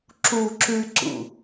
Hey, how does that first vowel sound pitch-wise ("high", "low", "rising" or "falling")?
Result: high